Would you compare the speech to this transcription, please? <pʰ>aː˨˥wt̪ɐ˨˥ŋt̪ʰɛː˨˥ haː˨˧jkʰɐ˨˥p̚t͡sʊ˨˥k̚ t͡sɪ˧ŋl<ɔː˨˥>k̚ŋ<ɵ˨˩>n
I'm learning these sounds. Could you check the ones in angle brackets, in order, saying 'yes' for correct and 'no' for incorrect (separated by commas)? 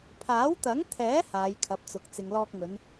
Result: yes, no, no